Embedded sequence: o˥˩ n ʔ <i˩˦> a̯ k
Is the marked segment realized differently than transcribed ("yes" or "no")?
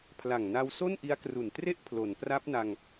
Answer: yes